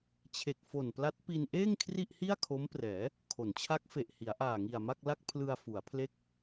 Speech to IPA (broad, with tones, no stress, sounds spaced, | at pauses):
t͡ɕʰ e˨˩ k̚ f o˨˩ n p l a˦˥ t̚ p i˧ n ʔ eː˥˩ ŋ kʰ r i˥˩ ʔ h i˥˩ a̯ kʰ o˦˥ m p r ɛː˩˦ | kʰ o˩˦ n t͡ɕʰ a˦˥ k̚ f e˨˩ ʔ h i˩˦ a̯ ʔ aː˨˩ ŋ i˨˩ a̯ m a˥˩ k̚ l a˥˩ k̚ pʰ l ɯ˧ a̯ f u˩˦ a̯ pʰ l e˦˥ k̚